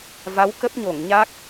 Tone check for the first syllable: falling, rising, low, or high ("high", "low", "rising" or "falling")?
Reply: rising